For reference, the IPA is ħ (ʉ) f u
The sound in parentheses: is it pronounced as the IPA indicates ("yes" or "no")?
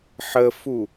no